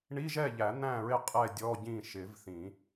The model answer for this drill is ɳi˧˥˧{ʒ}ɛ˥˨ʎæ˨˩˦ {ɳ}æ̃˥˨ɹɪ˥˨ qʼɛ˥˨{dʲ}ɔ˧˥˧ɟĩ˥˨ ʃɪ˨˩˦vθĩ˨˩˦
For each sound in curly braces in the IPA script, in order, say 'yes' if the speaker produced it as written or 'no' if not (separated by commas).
yes, no, yes